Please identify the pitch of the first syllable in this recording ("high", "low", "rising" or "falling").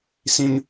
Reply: high